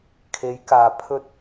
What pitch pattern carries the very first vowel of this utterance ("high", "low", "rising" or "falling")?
rising